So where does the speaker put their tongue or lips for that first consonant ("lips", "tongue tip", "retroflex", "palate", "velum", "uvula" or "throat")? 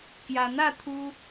velum